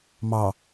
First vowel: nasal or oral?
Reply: oral